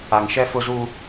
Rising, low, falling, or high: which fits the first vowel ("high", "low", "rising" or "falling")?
low